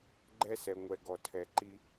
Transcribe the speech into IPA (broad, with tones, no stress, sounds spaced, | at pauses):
ɡ͡ǃ ɛ˦ s ɛ˨ ŋʷ ɛ˨ ɡ ɔ˨ tʰ ɛ˨ ǃ i˦